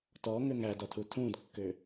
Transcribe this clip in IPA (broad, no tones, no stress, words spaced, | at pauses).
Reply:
tɔ ŋʏŋædɒtʰu tʰũdkːʏ